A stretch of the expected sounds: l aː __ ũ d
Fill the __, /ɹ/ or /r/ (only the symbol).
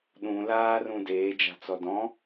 r